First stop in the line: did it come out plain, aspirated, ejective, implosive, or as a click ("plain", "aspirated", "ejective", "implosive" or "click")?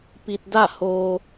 plain